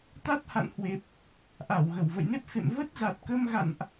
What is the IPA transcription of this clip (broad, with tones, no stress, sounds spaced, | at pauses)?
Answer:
t̪ a˦˥ t̚ h a̰˧˨ n h w e˨˩ p̚ | ʔ a˧˩ w ɣ ə˧˩ w v ə̰˧˨ j n e˦˥ p̚ f ḛ˧˨ m v ə˦˥ t̚ z a˨˩ t̚ k ə˧ m ɣ a̰˧˨ n ʔ